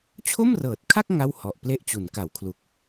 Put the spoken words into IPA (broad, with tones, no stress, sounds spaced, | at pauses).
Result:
t͡ɕʰ o˥˩ m r ɤː˨˩ t̚ kʰ a˥˩ k̚ ŋ a˥˩ w h ɔ˨˩ ʔ p l e˥˩ ʔ t͡ɕ u˩˦ n k a˩˦ w kʰ l u˨˩ k̚